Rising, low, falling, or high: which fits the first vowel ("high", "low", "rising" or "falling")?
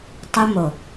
high